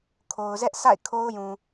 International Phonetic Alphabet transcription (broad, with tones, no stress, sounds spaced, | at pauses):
kʰ o˨ ʊ̯ z ɛ˦ ʔ s a̰˦˨ ɪ̯ kʰ o˦ ʊ̯ j ũ˨